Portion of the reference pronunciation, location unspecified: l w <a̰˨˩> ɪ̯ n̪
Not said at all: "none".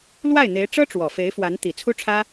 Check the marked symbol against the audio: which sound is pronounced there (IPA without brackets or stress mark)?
a˥˩